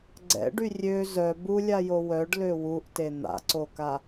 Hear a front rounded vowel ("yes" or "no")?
yes